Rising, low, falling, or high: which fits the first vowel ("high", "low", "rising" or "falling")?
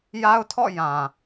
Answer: high